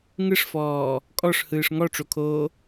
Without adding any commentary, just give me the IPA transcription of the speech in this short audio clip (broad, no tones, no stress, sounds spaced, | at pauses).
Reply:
ŋ ɯ ʂ f ɔː | kʼ ɔ ʂ h ɯː ʂ ŋ ɔ ʈ͡ʂ o kʰ oː